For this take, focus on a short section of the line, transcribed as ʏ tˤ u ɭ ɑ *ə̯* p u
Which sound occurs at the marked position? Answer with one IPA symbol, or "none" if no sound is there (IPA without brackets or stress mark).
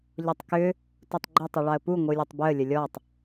ə̯